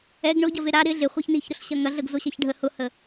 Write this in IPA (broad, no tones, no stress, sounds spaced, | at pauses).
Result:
ɛ ɡ ɳ ʊ ɟ ɐ v e ɾ a ɾ ɪ ɮ ɪ χʷ ɐ ç n i ç ɾ ʊ ɬ ɕ ɐ ŋ ɐ ɮ ə ɡ z o ɕ ɐ ç ɖʱ ə h ʊ h ə